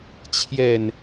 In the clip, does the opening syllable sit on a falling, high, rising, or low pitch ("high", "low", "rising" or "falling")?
low